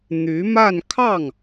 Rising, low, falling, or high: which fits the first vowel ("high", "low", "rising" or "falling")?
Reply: rising